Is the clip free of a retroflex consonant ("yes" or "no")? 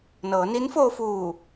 yes